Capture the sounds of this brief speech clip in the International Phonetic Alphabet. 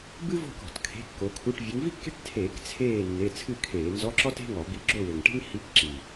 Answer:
bɨ˥vɔ̤˥˨k ɔ̤˧˩˧tkʰe̤˧˥˧kːo˨˦kʰu˧˥˧ʈ vʲɨ˨˦ŋvi˥kːe̤˥ʈ tʰeː˧˩˧k t͡sʰeː˥˨ nːe˧˥˧ t͡sʰɨ˥˨kʰeː˧˩˧nzɔ˧˥˧ ǁɔ˥te̤˧˥˧ŋɔ˧˩˧bi˨˦ ɡ͡ǁo˥˨wɘ˨˩ŋʈe̤˥ŋ hi˧˥˧kǁi˨˩

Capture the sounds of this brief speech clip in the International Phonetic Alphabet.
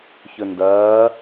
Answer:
çɵndɐː

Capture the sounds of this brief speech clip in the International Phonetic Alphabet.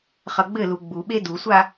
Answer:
χʌɡ͡bɘlu ɡ͡buɓe dusʷa

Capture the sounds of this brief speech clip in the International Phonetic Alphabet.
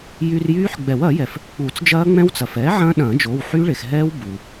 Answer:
jy˧rjyː˦˥ħ ɡ͡bɛ˨˩˦wɐː˨˩˦jɛ˩f | k͡pu˨˩˦t͡sd͡ʒɐː˦˥ŋ͡mɛ̃˦˥wt͡sɐ˩f ɛː˩˥ ʕɐ̃ː˦˥ɗɐ̃ː˨˩˦d͡ʒo˩˧˩w ħy˦˥ɭe˩xɦɛː˦˥w bu˩

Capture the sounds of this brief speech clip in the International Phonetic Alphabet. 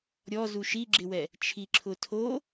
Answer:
ɾʲɔ zuʃiɡ͡ǁɪwɛ | t͡ʃʰiǁʰʊtʰo

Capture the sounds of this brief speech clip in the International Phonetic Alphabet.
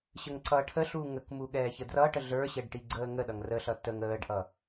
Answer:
ɕəŋǀʌːʈʰəɬuː ŋəkmu ɠɛːçədrʌʈə ɮə˞ɕɛɖ ʈiɡ͡ǀəːŋəɗʌŋ rəɬʌ təŋ əːɖʔʌ

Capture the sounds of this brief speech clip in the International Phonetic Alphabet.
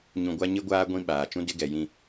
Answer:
ɲũ˨ɡʷa˦ ɲɪ˦ɡʷaː˦ ɡʷĩ˦ɓaː˨ t͡ʃũ˦dɪ˦ɡɛ˨ jĩ˦

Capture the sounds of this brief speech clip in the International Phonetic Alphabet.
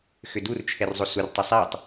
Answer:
xʏdurt͡ʃʰɛr zˤosur tˤesˤɛtˤ

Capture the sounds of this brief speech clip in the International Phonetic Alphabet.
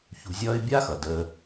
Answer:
çṳ˧zʲʌː˥ɪ̯ bʲa˥xʌ˩ dəː˧

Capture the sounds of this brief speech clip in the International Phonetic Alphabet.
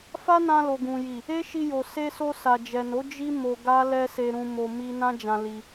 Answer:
fa˦nã˧lo˨ ɡũ˨ji˨ | e˦ʃi˧jo˨ se˧so˧ sa˨d͡ʒɛ˨no˨˦ d͡ʒi˦ mo˧ɡa˦ lɛ˦se˧ɾũ˧mo˧ mi˧ nã˦d͡ʒã˧ li˧

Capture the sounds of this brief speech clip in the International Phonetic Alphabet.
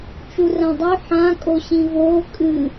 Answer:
t͡ʃurãdˤʉ ħã kʼoɕĩvoː kʼɨ

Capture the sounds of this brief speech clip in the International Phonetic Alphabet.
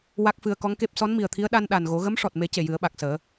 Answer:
wa˦˥k̚fɨ˧ə̯ kɔ˧˥ŋke˦˥p̚ sɔ˧˥nmi˨˩ə̯t̪ʰi˧˥ə̯ ɗa˧nɗa˨˩nɣo˨˩˦ ɣə˧˥mʂɔ˨˩t̚me˨˩˦ ce˨˩jɨ˨˩˦ə̯ɓa˨˩k̚səː˨˩˦

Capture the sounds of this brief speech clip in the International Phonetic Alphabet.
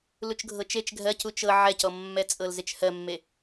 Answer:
lut͡ʃɡʱɤt͡ʃet͡ʃ ɡʱɜc ut͡ʃɤ ʕɛcɔmːɛt͡sʼɤl zet͡ʃhɜmːe

